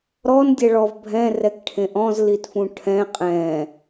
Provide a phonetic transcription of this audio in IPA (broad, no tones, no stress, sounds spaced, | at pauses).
ɾ ɔ n dʲ ɛ ɭ ɔ v bʱ ɛ̃ r ɛ k ʈʰ ẽ ʔ ɔ̃ z l i t f ũ ʈʰ ɛ̃ qʼ ɛ̃